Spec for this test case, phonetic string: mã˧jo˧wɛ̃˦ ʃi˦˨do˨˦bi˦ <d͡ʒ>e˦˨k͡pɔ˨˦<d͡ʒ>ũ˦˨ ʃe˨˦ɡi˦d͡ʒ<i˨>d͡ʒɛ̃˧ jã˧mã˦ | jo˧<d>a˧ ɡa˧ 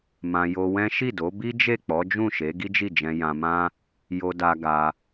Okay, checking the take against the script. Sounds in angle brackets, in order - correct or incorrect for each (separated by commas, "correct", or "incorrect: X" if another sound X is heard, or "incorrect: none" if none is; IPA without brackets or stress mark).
correct, correct, incorrect: i˦˨, correct